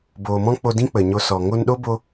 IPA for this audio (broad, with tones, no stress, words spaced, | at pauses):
boː˨mɔ̃˦k͡po˧ dĩ˦k͡pə˨ɲo˧ sɔ˨ ŋo˧nɗo˦ bo˦